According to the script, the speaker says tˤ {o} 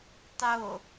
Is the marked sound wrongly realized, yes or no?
no